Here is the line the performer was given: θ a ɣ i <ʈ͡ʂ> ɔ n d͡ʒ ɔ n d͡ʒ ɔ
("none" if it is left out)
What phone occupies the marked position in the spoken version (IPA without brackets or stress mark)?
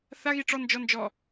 ʈ͡ʂ